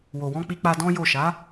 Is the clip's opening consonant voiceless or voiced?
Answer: voiced